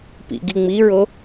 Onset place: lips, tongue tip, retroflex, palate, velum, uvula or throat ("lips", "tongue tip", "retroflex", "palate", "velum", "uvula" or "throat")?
lips